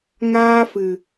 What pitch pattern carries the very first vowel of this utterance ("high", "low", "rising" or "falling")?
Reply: high